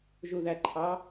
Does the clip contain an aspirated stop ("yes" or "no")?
yes